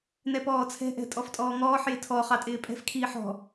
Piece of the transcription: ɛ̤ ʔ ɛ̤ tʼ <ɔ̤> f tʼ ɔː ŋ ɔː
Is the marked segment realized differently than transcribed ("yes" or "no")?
yes